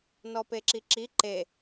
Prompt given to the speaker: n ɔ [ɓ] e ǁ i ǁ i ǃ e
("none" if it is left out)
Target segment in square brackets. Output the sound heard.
p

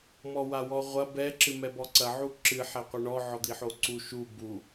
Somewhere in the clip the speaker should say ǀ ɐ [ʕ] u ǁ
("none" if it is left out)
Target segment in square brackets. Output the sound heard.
ʕ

